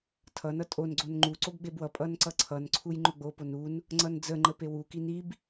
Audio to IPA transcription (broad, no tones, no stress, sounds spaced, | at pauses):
tʰ ʌ n ʌ tʼ o n ɡ͡ǀ o n ŋ͡ǃ u ǀ o b ɡ͡b e b w ʌ pʼ ʌ n ǀ ʌ ǀʰ ʌ n ǀʰ u j ŋ͡ǃ o ɡ͡b o p o n u n | ŋ͡ǀ ʌ n d͡z ə ŋ͡ǃ ə p e w u k i n i b